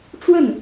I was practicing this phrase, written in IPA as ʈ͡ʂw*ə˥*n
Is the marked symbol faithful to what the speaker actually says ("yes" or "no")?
no